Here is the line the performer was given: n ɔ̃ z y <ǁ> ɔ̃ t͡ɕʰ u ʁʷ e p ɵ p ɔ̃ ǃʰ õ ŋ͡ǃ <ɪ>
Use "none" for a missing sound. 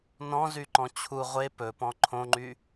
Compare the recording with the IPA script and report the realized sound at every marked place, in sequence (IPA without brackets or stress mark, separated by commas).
ǃ, y